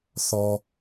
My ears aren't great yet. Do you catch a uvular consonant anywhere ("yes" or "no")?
no